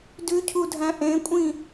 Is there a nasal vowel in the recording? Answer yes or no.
yes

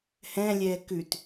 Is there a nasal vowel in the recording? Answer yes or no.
yes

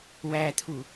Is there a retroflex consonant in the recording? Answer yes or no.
no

